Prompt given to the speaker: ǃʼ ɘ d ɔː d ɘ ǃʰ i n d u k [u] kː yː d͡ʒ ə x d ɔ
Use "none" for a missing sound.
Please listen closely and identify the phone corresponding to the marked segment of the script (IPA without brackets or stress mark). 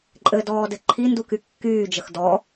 y